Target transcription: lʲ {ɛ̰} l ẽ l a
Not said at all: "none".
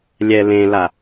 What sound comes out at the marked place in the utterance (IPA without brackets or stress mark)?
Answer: ɛ